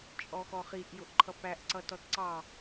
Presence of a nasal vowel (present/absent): absent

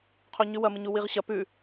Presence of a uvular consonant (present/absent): present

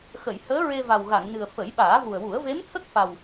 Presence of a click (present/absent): absent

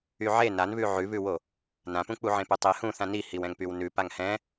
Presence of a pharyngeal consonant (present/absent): present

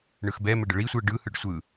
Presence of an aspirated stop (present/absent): absent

